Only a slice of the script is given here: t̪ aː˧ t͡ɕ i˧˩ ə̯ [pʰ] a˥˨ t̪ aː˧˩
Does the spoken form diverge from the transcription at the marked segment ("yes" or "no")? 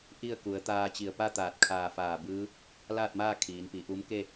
yes